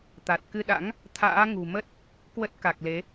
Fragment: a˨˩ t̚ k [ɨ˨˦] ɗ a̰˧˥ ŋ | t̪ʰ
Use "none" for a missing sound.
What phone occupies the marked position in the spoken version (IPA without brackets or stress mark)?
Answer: ɨ˧